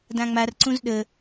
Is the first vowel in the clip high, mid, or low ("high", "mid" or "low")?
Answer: low